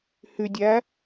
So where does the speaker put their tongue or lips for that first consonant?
throat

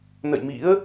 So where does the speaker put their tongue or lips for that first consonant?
tongue tip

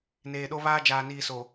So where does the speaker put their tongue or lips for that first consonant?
tongue tip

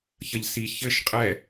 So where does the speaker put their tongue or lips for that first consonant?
palate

